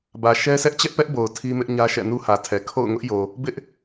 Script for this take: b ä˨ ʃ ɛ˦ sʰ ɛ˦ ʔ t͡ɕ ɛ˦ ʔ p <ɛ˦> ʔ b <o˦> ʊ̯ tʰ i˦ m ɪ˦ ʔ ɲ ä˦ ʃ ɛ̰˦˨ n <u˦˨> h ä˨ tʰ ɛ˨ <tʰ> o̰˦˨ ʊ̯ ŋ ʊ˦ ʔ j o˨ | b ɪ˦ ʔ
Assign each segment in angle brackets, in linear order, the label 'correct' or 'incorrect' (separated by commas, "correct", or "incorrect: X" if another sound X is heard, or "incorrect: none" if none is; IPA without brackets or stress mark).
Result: correct, incorrect: o˨, incorrect: u˦, incorrect: kʰ